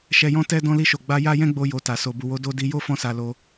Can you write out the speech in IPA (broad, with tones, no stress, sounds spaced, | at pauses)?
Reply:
ʃ ɛ˧ j ɔ̃˦ t ɛ˧ d ɔ̃˧ l i˧ ʃ o˨ ɡ͡b a˧ j a˦ j ɛ̃˦ ɡ͡b o˧ j o˨ t a˨ s o˨ b u˨ w o˨˦ d o˧ d i˧ j o˦ f ɔ̃˧ s a˨ l o˧